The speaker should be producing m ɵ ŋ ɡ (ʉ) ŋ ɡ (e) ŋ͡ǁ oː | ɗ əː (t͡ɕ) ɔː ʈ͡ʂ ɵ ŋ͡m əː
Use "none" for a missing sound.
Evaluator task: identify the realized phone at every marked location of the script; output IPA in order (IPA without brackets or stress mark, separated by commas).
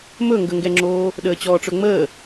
ə, ɛ, t͡ɕ